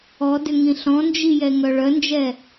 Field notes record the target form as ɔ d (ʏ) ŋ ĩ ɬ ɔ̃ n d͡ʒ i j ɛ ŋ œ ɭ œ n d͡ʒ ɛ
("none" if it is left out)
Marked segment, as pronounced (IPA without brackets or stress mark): ʏ